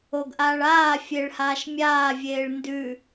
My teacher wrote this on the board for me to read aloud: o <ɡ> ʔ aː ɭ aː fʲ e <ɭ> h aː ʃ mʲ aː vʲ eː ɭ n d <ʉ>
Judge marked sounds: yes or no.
yes, yes, yes

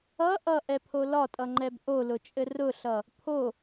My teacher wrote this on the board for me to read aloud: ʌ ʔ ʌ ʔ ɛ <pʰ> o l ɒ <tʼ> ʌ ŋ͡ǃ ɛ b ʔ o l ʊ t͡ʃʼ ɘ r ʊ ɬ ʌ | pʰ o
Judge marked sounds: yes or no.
yes, yes

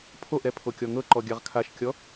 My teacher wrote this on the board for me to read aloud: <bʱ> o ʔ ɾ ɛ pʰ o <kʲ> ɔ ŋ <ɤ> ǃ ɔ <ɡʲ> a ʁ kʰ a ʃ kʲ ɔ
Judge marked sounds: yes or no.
no, yes, yes, yes

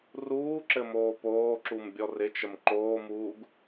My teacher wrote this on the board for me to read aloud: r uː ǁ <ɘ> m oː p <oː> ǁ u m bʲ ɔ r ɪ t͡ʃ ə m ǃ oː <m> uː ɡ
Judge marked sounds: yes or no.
yes, yes, yes

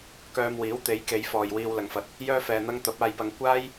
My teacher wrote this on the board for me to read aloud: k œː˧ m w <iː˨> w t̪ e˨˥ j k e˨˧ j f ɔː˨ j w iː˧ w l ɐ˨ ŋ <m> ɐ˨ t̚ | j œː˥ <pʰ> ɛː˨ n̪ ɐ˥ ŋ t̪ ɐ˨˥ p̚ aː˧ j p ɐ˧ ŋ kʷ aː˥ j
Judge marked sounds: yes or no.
no, no, no

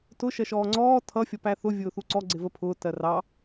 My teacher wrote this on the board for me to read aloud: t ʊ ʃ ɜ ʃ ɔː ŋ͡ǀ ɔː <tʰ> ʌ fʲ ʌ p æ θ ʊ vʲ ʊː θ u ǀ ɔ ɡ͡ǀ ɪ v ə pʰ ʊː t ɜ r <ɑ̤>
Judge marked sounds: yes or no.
yes, no

